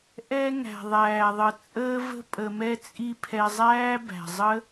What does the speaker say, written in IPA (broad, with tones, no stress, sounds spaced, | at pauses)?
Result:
ʔ ɛ˦ ŋ æ̤˨ ðˤ æː˨ ðˤ ə˨ t͡sʼ əː˦ v ə̤˦ pʼ ə˧ m ɛ˦ t͡sʼ i˦ pʰ ɛ˧ zˤ æː˦ b æ̤˨ zˤ ə˦